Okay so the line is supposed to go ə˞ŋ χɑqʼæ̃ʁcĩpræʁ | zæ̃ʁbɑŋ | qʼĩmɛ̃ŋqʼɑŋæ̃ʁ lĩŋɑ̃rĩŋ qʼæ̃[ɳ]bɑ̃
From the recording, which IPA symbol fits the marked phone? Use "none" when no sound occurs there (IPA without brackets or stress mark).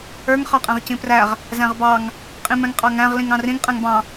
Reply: ŋ